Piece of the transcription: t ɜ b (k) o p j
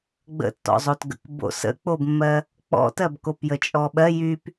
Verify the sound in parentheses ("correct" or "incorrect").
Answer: correct